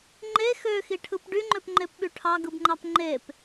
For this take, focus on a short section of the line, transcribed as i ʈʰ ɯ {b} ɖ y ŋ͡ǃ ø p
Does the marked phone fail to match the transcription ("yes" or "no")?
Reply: yes